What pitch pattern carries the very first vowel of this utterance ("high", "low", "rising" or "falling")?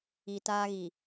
low